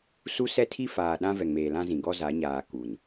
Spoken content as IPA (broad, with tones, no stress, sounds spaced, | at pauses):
s u˦ s ɛ˦ tʰ i˦ f aː˨ ɗ ã˦ v ɛ˨ ŋ m eː˨ l ã˦ z ĩ˨ ɡ ɔ˦ z a˨˦ ɲ aː˨ k u˨ n